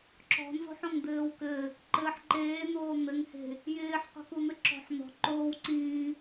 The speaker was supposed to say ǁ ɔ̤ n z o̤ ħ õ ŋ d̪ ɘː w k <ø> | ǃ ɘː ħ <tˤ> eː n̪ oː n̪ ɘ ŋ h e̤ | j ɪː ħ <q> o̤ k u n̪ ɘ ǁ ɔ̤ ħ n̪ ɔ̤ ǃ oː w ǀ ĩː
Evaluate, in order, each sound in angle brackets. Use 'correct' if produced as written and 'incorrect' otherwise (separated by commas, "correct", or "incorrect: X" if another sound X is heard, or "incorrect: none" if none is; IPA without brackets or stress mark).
incorrect: ɘ, incorrect: ǃ, correct